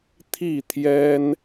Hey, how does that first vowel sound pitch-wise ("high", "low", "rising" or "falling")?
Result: falling